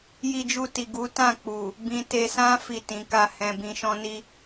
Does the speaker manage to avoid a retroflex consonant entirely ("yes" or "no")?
yes